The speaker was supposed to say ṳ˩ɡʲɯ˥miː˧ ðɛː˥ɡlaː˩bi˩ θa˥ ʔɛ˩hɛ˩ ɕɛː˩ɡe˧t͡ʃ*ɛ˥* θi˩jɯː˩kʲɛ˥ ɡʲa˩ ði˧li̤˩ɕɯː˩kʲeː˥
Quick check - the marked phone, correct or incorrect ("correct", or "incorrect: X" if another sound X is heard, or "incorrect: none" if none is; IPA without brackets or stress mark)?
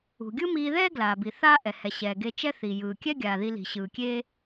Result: correct